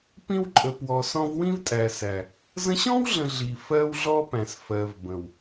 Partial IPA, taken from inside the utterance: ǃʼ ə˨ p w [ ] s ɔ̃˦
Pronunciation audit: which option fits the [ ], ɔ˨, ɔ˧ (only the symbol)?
ɔ˨